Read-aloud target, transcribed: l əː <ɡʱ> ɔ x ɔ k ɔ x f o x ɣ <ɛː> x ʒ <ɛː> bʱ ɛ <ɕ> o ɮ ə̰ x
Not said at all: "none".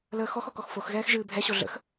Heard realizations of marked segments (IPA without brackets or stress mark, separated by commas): x, ɛː, ɨː, ɕ